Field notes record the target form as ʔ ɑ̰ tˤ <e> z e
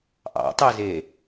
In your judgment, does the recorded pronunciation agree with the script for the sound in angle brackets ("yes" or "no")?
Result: yes